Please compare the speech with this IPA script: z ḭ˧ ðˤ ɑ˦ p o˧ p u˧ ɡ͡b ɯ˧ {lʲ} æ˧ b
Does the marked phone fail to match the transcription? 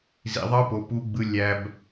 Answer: no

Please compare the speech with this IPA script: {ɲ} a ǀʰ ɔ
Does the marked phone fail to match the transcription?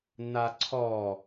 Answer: yes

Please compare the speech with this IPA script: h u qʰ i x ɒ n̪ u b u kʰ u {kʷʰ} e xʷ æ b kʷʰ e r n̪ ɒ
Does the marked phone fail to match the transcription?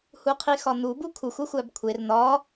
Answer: yes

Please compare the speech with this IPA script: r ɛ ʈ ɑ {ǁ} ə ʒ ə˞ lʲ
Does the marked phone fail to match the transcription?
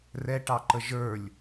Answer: yes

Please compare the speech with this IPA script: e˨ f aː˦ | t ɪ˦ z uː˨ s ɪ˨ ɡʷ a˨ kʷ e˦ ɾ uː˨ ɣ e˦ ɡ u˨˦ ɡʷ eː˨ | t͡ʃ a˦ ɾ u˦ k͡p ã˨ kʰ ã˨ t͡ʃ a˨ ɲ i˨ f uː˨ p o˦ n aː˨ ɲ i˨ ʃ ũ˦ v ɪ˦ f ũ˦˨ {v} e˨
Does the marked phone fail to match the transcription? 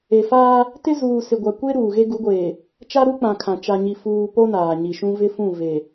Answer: no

